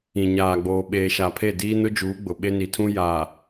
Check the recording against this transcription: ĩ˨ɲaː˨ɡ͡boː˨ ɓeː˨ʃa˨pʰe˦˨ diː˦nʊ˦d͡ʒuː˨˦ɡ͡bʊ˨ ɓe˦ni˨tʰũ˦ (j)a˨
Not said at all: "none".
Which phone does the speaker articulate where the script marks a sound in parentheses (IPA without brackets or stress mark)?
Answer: j